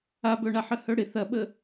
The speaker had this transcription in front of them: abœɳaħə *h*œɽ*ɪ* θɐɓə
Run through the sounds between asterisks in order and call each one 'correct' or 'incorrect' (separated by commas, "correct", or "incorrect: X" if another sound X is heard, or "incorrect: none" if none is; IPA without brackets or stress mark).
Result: correct, correct